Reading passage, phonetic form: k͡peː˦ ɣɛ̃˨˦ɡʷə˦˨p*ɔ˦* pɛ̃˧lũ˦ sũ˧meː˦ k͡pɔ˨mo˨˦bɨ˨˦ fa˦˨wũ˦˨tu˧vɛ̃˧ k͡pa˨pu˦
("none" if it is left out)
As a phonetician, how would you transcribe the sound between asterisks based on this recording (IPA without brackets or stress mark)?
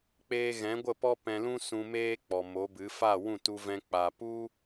ɔ˦